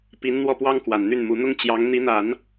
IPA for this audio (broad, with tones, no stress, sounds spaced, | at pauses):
p i˧˥ n n̪ w ɔ˥˩ p w ɑ˥ ŋ k w a˨˩ n n̪ y˥˩ n m u˧˥ n̪ ʊ˥ ŋ t͡ɕ j ɑ˧˥ ŋ n̪ i˧˥ n̪ a˨˩˦ n